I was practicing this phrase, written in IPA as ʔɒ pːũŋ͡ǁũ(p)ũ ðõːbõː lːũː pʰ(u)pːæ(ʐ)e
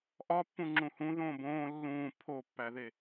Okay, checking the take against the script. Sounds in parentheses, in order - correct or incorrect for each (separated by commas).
incorrect, incorrect, incorrect